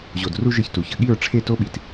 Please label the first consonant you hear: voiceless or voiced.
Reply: voiced